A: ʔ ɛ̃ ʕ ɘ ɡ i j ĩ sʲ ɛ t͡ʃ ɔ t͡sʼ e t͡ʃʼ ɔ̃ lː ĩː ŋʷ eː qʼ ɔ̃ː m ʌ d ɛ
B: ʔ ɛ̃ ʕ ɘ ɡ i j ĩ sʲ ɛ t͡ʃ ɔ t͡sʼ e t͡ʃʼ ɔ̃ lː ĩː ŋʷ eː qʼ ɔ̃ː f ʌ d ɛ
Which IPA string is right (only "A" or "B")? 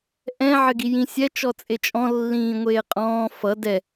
B